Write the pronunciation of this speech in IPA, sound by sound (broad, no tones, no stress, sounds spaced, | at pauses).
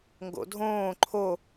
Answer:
ŋ ɡ o̰ dʱ õː ǃʰ o